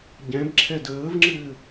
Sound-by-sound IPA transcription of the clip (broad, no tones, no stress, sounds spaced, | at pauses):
ɟ ɛ̃ b ǁʰ ɛ d əː v ŋ͡ǁ ɘː